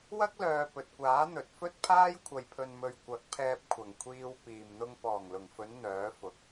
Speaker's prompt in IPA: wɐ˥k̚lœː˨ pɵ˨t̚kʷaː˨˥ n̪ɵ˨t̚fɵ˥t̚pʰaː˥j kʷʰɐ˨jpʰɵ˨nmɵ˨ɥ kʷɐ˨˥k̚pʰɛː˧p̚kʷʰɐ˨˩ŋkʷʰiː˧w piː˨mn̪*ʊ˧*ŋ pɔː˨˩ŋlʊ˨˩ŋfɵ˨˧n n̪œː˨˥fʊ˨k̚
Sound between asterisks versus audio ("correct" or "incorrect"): correct